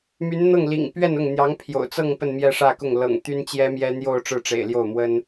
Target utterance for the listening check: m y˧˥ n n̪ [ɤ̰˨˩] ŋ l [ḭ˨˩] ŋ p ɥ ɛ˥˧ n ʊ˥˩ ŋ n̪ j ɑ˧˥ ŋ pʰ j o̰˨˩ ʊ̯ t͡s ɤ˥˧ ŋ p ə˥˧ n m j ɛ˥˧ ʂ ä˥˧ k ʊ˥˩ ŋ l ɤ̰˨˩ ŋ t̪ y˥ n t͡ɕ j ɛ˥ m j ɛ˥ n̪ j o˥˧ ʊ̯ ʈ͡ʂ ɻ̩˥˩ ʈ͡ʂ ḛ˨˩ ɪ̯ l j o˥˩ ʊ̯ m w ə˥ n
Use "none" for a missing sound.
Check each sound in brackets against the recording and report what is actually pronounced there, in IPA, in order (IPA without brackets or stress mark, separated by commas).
ɤ˥˩, ḭ˨˩